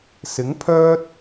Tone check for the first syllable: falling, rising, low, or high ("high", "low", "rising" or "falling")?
rising